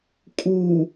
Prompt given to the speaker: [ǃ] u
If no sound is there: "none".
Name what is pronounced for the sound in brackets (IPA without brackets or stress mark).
kʼ